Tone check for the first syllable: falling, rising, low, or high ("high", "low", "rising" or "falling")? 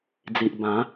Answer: low